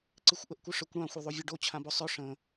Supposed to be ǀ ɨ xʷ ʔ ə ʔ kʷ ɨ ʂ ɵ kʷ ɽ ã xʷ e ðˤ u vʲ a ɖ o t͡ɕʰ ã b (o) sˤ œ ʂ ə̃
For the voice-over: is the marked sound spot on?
yes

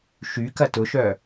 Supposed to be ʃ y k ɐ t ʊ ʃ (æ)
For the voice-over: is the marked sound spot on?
no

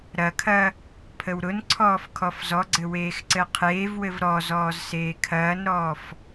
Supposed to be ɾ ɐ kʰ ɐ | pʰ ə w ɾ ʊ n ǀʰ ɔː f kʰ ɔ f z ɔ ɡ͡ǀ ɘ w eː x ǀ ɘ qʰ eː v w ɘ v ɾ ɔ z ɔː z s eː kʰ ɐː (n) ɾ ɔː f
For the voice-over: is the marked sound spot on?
yes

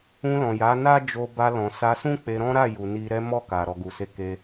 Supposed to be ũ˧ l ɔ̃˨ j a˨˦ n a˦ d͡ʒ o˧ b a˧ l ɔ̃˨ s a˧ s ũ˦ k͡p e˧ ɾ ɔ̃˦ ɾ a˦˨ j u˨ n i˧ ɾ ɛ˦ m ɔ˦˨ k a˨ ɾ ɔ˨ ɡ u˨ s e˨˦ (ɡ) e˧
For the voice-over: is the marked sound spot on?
no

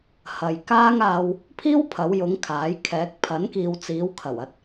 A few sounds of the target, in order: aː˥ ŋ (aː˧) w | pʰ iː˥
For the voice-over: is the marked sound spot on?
yes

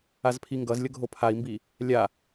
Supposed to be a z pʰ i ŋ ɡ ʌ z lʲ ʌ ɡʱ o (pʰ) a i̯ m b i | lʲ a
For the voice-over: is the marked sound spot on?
yes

